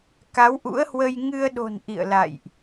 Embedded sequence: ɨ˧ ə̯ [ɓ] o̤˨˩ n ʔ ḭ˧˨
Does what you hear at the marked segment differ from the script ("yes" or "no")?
yes